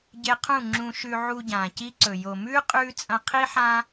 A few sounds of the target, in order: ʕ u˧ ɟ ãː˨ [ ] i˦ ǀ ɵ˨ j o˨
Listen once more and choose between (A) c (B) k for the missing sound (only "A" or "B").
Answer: A